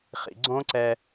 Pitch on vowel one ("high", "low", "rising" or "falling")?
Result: low